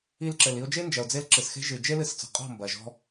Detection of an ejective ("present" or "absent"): present